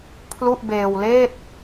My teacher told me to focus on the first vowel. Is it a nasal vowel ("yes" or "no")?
no